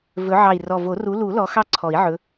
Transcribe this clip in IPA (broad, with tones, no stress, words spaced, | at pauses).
vɵ˨˦ ʕɑ˨˩i̯rɔ˨˩ vo˨˩˦ru˨˦lu˨˩˦ lɔ˨˦ xɑ˥ǀʰɔ˨˩˦i̯ʕɵ˨˦